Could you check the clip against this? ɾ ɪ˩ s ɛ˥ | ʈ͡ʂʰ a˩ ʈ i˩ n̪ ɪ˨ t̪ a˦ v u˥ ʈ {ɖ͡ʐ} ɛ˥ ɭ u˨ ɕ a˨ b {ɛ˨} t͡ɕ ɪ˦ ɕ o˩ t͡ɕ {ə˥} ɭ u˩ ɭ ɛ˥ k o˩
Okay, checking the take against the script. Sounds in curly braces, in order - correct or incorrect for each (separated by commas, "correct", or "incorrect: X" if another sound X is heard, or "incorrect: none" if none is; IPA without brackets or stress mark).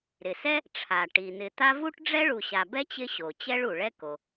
correct, incorrect: ɛ˥, incorrect: ɛ˥